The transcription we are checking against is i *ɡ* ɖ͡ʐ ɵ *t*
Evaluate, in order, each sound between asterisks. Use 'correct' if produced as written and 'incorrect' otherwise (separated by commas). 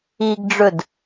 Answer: correct, incorrect